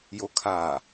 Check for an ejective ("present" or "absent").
absent